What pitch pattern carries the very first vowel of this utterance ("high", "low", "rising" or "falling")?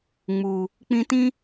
low